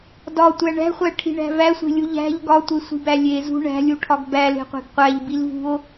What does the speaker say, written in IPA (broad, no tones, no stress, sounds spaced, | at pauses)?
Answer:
d ɒ tʷ æ ɳ æ̤ χʷ æ ʈʰ i̤ ɳ æ̤ v æ sʷ e̤ lʲ u ʎ æ̤ ʎ ɡ ɒ tʷ e sʷ i̤ b æ lʲ e z ṳ ɳ æ̤ lʲ u ʈʰ ɒ ɡ b æ l e̤ qʷ e̤ ɡ qʷ æ ʎ b i l v ṳ o̯